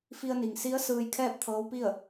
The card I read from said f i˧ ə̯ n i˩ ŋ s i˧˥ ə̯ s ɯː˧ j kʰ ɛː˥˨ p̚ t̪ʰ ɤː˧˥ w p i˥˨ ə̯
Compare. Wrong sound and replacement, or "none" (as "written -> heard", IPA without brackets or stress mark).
none